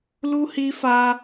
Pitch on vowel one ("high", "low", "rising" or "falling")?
high